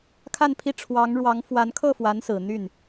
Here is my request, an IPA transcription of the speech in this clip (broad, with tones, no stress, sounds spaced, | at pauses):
kʰ a˥˧ n pʰ i˥˩ ʈ͡ʂʰ w ɑ˧˥ ŋ ɻ w ɑ˧˥ ŋ f w a˧˥ n kʰ ɤ˥˩ f w a˧˥ n s ɹ̩˨˩ n̪ y˥˩ n